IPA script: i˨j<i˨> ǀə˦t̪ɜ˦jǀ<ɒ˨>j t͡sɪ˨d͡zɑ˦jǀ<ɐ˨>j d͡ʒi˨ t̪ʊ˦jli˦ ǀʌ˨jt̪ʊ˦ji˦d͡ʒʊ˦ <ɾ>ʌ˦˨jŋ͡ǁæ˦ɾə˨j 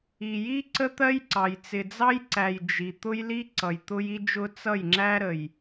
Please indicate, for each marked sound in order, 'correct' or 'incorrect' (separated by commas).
incorrect, incorrect, incorrect, incorrect